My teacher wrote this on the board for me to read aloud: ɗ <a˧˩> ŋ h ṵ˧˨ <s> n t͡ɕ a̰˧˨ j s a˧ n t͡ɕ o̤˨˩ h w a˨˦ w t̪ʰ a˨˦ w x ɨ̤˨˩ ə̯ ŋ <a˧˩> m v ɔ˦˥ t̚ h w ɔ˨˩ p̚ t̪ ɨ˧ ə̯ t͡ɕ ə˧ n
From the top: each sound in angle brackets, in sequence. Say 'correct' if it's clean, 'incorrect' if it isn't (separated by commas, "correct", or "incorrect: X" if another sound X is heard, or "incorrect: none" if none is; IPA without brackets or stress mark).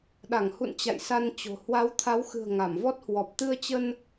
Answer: correct, incorrect: none, correct